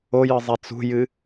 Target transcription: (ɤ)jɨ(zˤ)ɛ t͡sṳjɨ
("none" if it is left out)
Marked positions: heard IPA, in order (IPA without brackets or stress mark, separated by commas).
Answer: o, zˤ